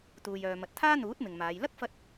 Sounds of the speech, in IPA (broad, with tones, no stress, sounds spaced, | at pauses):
t̪ uː˨ j œː˨ m ɐ˨ t̚ t̪ʰ aː˥ n̪ uː˨˥ t̚ m ɪ˨ ŋ m aː˨˧ j l ɐ˥ k̚ f ɐ˧ t̚